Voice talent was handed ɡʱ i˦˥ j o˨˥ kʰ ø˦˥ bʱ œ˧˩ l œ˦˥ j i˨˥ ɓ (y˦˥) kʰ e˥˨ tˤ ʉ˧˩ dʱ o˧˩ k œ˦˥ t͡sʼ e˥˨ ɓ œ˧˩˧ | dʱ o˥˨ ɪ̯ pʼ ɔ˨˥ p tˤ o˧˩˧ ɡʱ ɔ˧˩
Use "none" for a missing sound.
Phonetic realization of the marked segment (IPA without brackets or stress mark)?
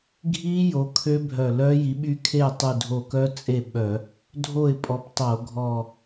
y˦˥